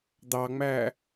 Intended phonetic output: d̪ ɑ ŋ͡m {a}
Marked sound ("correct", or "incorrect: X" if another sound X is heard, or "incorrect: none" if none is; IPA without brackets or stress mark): incorrect: æ